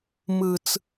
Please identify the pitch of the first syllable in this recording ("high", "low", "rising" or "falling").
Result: low